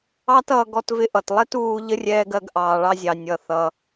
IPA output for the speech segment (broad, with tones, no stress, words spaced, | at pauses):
ɑ˥tʌː˧ ɡɔ˧tvɪ˧ʔʌ˩tlˠɛ˥t uː˧ʎə˥rʲɛː˧ɡ ɜ˧ɡʔɑː˩ɭɑ˧zʲɑ˩ nʲʌ˩θʌ˩